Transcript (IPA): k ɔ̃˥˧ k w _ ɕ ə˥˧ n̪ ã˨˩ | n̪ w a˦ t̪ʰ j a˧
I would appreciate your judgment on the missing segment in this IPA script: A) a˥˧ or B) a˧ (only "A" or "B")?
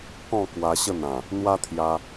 B